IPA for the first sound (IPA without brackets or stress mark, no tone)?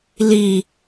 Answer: l